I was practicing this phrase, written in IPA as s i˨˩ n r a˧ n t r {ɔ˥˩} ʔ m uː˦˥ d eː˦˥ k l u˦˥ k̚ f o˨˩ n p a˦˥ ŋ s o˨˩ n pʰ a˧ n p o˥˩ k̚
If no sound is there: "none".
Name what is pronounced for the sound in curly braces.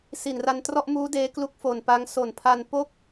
ɔ˥˩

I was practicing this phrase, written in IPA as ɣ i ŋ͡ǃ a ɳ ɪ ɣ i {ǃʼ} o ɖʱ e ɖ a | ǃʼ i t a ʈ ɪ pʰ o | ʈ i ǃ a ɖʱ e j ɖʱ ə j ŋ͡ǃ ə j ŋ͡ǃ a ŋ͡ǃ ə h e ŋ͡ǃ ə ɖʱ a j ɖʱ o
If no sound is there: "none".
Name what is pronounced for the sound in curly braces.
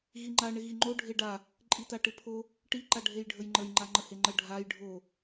ŋ͡ǃ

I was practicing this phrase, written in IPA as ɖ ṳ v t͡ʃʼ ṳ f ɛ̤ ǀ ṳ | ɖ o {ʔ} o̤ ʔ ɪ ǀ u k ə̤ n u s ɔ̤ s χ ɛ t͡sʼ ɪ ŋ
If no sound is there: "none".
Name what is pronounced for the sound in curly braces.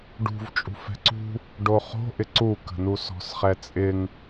χ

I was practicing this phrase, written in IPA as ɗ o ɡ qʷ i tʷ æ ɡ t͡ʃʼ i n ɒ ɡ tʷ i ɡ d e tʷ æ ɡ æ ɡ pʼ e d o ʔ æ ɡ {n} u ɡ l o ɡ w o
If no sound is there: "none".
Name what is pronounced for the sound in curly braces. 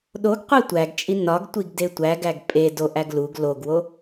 l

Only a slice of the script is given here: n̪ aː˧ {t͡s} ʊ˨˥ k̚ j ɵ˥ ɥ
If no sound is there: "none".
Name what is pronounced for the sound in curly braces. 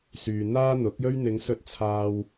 n̪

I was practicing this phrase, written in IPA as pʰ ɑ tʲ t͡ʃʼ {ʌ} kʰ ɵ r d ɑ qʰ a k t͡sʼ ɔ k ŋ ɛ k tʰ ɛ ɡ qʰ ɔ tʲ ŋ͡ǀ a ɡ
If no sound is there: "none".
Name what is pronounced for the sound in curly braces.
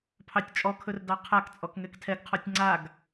ɔ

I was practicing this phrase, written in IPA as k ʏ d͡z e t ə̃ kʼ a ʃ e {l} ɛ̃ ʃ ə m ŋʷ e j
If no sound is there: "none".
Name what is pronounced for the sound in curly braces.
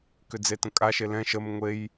l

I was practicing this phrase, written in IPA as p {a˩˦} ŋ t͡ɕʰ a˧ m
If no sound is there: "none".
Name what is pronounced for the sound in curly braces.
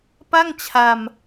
a˥˩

